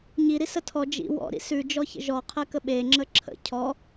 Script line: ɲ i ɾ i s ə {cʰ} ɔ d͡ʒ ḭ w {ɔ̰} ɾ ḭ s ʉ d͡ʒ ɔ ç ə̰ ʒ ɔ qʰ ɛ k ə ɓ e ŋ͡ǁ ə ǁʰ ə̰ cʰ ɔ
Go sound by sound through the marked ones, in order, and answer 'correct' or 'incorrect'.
incorrect: tʰ, correct

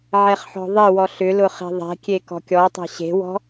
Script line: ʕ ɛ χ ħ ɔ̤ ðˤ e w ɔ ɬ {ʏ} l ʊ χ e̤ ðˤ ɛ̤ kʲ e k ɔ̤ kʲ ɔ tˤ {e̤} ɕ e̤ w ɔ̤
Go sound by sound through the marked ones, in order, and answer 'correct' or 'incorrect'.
correct, incorrect: ɛ̤

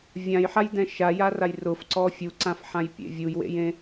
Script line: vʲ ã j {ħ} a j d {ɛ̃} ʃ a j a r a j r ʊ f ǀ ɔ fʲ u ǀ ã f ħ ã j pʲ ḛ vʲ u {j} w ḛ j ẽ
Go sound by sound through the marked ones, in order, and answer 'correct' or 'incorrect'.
correct, correct, correct

